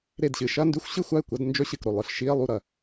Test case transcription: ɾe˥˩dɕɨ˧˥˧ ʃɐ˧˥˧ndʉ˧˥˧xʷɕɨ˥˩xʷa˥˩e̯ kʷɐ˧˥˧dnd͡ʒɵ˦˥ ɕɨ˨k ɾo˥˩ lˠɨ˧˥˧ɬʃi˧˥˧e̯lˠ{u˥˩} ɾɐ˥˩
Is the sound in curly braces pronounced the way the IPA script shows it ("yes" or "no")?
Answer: yes